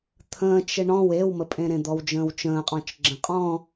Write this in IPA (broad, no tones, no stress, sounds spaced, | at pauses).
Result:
t̪ʰ ə̃ː t͡ʃ e ɳ ɔ̃ w e w m ə pʼ ẽ ɾ ẽ d̪ ɔ w d͡ʒ ə̃ː w t͡ʃ ə̃ː qʼ ɔ̃ t͡ʃ ɡ͡ǁ ə̃ qʼ ɔ̃